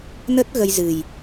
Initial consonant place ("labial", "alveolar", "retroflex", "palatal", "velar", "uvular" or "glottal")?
alveolar